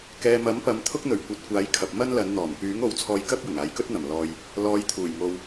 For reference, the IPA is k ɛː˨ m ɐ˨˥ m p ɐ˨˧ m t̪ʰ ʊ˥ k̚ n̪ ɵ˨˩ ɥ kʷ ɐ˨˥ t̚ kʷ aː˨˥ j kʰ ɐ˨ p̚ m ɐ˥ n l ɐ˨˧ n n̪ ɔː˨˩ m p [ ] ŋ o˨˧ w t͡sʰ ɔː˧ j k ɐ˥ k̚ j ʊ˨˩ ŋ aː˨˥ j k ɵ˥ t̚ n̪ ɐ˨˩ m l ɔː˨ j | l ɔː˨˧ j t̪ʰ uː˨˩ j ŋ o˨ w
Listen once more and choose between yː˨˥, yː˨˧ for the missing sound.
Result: yː˨˥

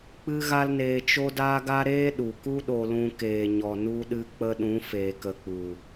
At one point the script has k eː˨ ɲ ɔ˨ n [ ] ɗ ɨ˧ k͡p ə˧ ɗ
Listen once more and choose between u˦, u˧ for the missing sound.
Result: u˧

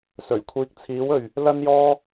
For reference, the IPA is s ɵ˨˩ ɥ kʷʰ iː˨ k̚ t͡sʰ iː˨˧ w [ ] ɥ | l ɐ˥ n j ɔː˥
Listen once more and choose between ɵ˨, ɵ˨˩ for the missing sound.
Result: ɵ˨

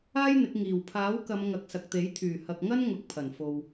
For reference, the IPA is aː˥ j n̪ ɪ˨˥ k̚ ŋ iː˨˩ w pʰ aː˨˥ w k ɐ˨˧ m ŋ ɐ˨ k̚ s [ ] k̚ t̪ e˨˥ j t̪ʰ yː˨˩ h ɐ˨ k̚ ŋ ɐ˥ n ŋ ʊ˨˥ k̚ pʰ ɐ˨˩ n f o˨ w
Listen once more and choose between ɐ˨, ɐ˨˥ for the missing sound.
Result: ɐ˨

